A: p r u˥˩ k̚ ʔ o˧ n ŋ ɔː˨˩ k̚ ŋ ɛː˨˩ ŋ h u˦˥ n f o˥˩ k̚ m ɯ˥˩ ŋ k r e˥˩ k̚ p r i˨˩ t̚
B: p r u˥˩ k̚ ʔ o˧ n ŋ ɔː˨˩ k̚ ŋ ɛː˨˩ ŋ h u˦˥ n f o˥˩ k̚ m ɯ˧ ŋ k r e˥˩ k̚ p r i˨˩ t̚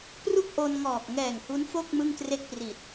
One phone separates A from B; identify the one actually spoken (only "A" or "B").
A